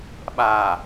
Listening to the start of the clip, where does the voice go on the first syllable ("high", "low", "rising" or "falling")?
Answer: low